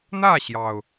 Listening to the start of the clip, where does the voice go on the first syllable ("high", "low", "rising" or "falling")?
falling